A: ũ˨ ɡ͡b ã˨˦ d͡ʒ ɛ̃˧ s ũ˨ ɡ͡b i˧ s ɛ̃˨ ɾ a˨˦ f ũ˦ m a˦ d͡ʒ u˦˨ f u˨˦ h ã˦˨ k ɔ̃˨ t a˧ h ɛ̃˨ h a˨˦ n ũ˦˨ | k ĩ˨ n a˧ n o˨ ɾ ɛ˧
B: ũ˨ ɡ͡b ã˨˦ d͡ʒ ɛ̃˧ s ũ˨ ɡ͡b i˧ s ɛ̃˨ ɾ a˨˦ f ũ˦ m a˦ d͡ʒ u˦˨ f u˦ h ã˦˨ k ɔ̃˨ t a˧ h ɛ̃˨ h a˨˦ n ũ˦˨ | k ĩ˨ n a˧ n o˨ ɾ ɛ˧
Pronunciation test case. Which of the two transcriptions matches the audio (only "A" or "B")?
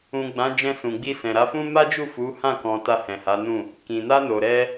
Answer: A